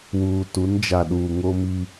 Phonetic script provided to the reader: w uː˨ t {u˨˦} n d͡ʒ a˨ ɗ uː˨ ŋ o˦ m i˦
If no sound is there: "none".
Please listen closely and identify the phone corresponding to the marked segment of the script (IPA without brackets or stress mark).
u˨˦